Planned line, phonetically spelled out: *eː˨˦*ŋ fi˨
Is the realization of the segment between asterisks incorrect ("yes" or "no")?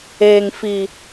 yes